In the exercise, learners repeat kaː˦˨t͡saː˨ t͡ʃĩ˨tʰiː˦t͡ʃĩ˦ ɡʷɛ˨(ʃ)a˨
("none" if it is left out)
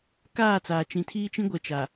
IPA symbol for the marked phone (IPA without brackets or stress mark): t͡ʃ